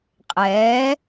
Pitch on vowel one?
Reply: rising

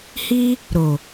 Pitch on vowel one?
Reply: high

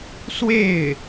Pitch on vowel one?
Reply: falling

